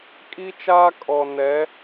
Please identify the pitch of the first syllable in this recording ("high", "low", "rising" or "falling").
high